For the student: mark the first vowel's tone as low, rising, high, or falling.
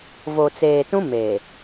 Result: low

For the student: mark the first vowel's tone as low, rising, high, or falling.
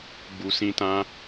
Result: low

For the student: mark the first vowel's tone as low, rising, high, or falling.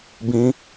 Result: high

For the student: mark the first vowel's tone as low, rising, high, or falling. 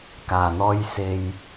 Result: low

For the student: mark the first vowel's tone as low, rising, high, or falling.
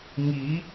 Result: rising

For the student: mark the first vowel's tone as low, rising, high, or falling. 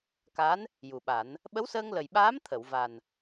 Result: rising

